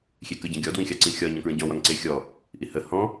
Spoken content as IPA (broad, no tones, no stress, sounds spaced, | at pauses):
xʲ e k ə ɟ ə̃ ɡʲ ɔ d w ĩ xʲ ɑ ǀ ĩ xʲ ɒ ɲ ɔ̃ k ɹ ə̃ ɟ ɔ̃ w ɒ ŋ ǀ e xʲ ɔ | ʔ i h ə h ɔ̃